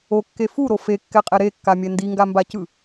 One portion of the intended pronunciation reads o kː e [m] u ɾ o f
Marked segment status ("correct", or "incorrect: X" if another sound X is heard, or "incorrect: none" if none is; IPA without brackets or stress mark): incorrect: f